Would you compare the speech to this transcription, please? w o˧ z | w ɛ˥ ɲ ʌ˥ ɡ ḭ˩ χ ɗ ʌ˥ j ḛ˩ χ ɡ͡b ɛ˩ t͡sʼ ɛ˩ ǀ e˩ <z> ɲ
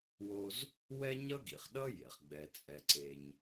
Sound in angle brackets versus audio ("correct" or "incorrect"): incorrect